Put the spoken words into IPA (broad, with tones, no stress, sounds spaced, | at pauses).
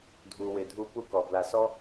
dʱ u˨ w ɪ˨ dʱ u˦ p u˦ k ɔ˩ b l a˨ s ɔ˥